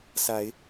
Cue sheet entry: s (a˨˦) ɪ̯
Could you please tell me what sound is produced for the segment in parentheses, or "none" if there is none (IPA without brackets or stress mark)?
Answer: a˨˦